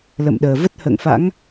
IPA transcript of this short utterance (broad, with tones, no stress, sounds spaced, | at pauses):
l ə̰˧˨ m ɗ əː˨˩ v ə˦˥ t̚ h ə̰ː˧˨ ŋ f a̰˧˥ ŋ